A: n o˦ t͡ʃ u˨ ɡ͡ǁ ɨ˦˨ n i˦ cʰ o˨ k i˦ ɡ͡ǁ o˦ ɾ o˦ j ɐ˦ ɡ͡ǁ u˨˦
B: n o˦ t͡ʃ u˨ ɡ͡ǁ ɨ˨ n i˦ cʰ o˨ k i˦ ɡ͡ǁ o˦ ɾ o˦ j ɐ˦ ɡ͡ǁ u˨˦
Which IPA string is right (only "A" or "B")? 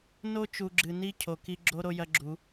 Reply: B